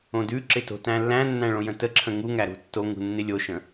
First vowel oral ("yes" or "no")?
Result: no